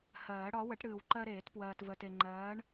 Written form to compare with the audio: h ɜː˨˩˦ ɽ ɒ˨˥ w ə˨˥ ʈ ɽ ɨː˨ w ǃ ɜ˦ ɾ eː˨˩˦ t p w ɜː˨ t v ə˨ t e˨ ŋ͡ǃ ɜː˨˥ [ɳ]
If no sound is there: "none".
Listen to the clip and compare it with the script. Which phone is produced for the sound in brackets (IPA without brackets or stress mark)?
ɳ